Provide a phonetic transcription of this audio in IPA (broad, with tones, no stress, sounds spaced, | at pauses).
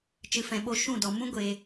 t͡ʃ ɨ˨ f ɛ̃˨ ɓ o˧ ʃ ũ˦˨ d ɔ˨ m ũ˦ ɡʷ e˨